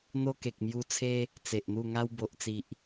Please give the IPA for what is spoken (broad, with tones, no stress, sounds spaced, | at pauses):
n̪ o˦ k e˨ k̚ m j u˧ t͡sʰ e˦ | t͡s e˨ ʔ n̪ u˥˧ ŋ a˦ w b o˨ ʔ t͡s i˨ ʔ